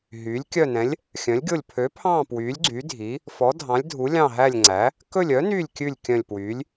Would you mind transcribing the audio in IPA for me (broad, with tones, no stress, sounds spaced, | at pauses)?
ɦ yː˨˥ lʲ kʲ œ˦˨ n ɛ̃˨˥ lʲ | xʲ œ̃˨˥ lʲ ɡʲ o˦˨ lʲ pʰ ø˨˥ pʰ ɑ̃ː˦˨ p w yː˨˥ lʲ ɡ͡ǀ y˨˥ dʱ i˨˥ | f ɔ˨˥ dʱ ɑ̃˨˥ lʲ dʱ u˨˥ lʲ ɑ̃˦˨ ɦ æ˦˨ lʲ ŋ͡ǀ æ˨˥ | k ɵ˦˨ lʲ œ˨˥ n yː˦˨ lʲ kʲ ʉ˦˨ lʲ kʲ œ̃˦˨ lʲ p w yː˨˥ lʲ